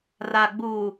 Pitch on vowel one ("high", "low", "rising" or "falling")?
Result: low